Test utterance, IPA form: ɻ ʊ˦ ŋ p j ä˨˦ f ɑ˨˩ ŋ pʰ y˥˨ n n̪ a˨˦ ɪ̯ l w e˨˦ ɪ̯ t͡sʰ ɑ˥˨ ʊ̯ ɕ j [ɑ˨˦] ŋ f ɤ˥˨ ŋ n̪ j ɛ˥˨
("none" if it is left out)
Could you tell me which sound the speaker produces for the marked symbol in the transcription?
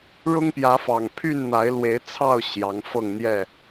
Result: ɑ˨˦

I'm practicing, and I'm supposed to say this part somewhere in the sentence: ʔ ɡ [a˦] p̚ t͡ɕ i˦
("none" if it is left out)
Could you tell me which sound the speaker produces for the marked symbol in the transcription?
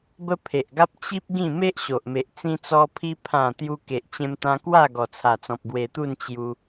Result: a˦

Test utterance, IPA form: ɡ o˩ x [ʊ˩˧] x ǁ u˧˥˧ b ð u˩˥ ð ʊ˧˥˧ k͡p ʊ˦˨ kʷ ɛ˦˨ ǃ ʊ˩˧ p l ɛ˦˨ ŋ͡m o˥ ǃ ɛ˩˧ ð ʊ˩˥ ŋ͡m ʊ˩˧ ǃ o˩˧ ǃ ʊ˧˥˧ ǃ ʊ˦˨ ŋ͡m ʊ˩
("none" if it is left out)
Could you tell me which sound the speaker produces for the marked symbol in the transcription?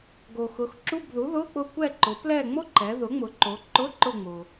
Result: ʊ˩˧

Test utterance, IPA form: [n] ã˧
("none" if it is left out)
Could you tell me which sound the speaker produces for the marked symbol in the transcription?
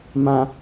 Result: m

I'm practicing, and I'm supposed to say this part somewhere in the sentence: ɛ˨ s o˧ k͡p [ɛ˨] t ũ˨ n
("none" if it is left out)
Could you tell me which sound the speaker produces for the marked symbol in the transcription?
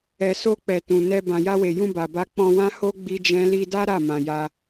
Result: ɛ˨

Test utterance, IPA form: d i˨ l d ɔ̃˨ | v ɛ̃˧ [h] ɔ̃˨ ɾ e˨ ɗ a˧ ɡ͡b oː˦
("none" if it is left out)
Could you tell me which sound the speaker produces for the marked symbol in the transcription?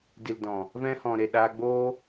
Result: h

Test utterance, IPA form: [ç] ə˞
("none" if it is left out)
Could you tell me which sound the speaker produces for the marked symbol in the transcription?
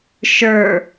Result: ʃ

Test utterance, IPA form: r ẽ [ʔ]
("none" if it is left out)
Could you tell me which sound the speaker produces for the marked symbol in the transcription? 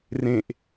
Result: ʔ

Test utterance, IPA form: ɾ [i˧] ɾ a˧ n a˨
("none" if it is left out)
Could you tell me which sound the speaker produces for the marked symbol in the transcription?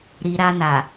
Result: i˧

